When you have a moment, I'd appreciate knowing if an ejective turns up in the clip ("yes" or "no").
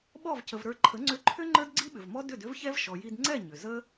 no